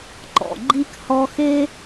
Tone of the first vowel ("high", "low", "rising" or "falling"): low